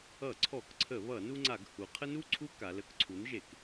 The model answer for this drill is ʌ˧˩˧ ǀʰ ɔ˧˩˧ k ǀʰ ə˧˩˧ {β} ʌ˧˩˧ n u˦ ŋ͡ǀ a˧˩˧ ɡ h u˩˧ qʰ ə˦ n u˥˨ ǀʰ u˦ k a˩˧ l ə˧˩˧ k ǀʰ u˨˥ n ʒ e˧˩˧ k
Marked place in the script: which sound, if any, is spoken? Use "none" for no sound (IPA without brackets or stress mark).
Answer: β